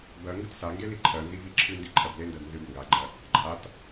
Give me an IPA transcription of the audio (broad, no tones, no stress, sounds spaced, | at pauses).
b ɜ ŋ ɡ ə t s a ŋ ɡ e l i ǃʰ ɜ n z i v i ǁʰ ɨ n d i ǃʰ ɜ b l e n d ɜ d n z ɨ b ŋ ɡ a ɡ͡ǃ ɜ | ǃʰ a t